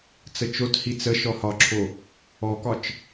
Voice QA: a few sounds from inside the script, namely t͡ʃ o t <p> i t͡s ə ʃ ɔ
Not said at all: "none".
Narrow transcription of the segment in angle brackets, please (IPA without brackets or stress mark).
h